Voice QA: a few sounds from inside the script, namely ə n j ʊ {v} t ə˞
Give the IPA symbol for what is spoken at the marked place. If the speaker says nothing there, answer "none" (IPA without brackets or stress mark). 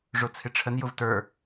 v